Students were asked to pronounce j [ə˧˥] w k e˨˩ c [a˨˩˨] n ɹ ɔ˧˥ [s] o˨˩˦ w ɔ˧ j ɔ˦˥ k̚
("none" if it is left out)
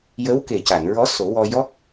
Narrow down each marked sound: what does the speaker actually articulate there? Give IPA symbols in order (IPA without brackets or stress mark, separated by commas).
ə˧˥, a˨˩˨, s